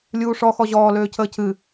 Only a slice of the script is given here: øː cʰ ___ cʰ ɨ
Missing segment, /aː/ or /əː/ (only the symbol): əː